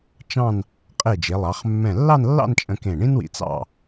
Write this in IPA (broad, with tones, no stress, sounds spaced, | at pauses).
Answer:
t͡ʃ ɑ̃˥˧ n | qʼ e˧˩ d͡ʒ e˩˧ lˠ ɑ˩˧ χ mː ɛ̃˧˩ lː ɑ˥˧ n lː ɑ̰˥˧ n t͡ʃʼ ə̃˧ k ẽ˧˩ ɳ ĩ˥ n w ḭ˧ t͡s ɑ̰˥˧